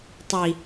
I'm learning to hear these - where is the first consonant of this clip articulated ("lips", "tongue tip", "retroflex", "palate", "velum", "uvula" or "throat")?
tongue tip